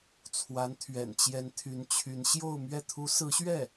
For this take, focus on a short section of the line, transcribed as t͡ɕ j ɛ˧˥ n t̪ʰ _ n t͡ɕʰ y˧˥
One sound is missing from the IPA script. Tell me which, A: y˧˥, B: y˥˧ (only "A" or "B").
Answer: A